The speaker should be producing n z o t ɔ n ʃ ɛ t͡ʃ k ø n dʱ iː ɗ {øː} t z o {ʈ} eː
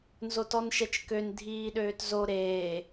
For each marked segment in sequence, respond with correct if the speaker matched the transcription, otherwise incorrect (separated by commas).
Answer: correct, incorrect